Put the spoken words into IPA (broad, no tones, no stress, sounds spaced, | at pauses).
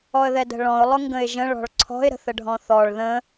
ɔ ə̯ ð ɛ d ə̤ ɭ ɔ̃ ʊ̯ lˠ ʊ ŋ ɡ ə̃ ɪ̯ ʒ ə̃ ɭ ɔ̤ ɭ ǀʰ ɔ̤ ɪ̯ ɾ ə̤ θ ə ɖʱ ɔ̃ θ ɔ ɭ ð ə̃